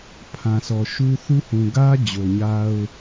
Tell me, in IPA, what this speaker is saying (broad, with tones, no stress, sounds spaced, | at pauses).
pʰ ã˨ sʰ ɔ˨ ʃ u˦ θ u˦ h ũ˨ ɡ ä˦ d͡ʑ o˨ ɲ a˦ ʊ̯